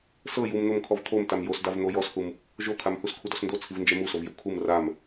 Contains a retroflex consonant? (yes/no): no